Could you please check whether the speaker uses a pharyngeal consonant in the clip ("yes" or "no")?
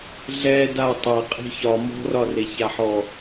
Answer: yes